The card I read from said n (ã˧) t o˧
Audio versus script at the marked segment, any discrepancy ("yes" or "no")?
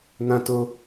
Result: no